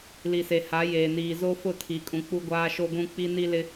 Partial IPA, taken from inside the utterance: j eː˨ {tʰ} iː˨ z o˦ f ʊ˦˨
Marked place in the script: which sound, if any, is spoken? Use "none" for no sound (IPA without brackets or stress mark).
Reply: n